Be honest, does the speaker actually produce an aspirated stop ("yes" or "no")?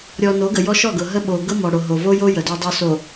no